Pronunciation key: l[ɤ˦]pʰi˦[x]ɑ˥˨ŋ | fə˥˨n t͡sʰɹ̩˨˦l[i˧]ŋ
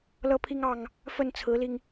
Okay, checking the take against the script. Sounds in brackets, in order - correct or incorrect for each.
correct, incorrect, correct

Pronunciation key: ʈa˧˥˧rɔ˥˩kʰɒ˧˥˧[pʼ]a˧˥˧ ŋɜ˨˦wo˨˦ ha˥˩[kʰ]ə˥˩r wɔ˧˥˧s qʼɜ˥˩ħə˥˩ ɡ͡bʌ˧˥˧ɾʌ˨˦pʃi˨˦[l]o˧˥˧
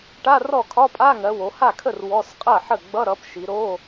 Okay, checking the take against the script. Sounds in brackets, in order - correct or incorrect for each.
correct, correct, incorrect

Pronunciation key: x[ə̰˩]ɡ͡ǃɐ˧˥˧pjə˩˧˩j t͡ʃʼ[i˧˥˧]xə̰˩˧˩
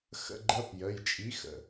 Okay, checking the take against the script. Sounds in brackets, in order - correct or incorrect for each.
incorrect, incorrect

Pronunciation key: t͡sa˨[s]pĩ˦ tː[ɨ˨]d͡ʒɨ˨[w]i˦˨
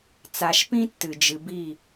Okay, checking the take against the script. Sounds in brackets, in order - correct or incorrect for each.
incorrect, correct, incorrect

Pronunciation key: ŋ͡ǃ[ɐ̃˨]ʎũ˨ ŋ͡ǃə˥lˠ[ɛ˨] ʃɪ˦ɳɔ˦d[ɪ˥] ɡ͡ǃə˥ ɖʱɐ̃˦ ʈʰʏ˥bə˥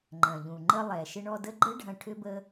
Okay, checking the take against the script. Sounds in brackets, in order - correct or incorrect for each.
correct, correct, incorrect

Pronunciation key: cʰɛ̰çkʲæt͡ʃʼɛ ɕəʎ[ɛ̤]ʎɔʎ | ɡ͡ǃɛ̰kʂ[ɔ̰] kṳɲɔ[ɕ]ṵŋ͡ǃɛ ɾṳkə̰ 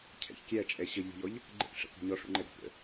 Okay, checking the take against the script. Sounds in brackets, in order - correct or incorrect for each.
incorrect, incorrect, incorrect

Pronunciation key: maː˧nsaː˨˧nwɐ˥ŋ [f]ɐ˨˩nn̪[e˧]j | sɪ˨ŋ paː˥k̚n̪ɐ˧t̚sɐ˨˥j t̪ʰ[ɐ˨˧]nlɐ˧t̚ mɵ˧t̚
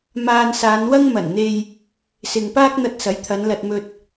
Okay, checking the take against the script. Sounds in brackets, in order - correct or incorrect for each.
incorrect, correct, correct

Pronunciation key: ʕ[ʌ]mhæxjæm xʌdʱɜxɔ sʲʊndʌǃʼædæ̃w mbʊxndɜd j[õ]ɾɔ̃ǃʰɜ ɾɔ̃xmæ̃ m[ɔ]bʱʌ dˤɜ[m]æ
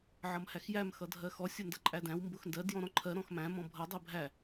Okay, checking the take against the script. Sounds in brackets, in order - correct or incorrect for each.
correct, incorrect, incorrect, incorrect

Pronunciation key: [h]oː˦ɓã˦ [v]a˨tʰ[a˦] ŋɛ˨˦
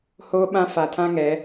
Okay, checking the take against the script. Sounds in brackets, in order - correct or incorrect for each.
correct, incorrect, incorrect

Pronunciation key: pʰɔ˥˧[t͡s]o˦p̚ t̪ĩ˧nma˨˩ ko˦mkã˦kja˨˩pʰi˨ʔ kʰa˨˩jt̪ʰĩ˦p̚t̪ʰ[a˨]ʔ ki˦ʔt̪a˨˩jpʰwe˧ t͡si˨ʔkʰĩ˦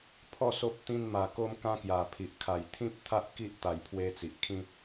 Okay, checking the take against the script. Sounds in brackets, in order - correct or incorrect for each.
incorrect, incorrect

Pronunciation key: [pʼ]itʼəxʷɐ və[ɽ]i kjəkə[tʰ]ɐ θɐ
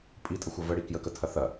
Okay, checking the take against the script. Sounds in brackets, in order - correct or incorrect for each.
correct, correct, correct

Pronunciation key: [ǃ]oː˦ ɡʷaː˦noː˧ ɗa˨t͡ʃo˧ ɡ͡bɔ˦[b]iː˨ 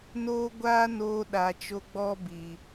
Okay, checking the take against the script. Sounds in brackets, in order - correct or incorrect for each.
incorrect, correct

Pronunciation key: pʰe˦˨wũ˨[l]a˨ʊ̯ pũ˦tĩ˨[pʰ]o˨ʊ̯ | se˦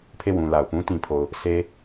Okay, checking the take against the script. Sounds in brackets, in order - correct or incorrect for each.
correct, correct

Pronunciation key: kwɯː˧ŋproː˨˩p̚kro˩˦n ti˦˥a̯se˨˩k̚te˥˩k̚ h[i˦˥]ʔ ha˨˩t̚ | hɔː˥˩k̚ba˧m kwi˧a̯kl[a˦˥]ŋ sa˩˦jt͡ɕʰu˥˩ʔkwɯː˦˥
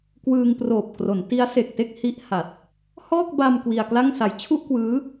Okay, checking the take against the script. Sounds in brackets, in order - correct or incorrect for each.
correct, incorrect

